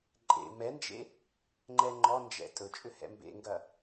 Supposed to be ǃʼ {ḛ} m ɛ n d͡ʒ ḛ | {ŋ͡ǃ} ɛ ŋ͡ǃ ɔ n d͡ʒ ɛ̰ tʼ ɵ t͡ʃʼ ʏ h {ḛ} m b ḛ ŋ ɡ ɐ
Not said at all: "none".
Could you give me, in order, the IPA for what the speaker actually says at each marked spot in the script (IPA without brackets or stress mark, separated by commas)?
ḛ, ŋ͡ǃ, ɛ̰